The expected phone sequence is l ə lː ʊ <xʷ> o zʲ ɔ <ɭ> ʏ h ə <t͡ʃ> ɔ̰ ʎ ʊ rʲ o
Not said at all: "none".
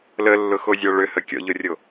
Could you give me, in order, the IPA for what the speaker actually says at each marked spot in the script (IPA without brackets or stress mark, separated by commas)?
x, ɭ, kʲ